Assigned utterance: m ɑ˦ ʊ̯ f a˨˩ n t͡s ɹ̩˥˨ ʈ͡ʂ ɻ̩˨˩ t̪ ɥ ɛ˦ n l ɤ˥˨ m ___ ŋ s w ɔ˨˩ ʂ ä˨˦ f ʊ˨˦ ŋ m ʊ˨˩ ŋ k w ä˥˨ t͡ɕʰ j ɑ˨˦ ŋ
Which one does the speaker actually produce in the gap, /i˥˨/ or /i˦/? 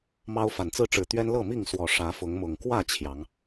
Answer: i˥˨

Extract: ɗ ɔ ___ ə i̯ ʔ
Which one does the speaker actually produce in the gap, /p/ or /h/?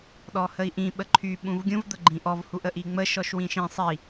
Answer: h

